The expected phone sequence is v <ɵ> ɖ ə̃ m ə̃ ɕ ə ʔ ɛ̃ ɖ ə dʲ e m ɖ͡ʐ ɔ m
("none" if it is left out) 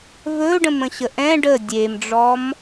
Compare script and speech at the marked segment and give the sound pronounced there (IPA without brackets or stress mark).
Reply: ɵ